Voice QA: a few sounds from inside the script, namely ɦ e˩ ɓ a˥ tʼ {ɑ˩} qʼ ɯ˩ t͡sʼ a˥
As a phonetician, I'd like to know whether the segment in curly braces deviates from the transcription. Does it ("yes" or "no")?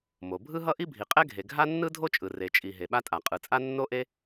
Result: yes